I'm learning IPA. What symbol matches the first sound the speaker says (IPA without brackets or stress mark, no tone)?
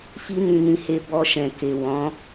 f